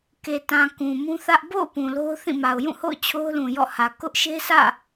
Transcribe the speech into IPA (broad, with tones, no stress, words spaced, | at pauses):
ke˨tã˨ kũ˨mũ˦θä˦ʔ bo̰˦˨ʊ̯ pũ˨lo˦ʊ̯θĩ˦˨ma˨ʊ̯ jũ˦˨ho̰˦˨ʊ̯ t͡ɕʰo˦ʊ̯lũ˨ jɔ̰˦˨hä˨ kʊ˦ʔ ʃe˦sä̰˦˨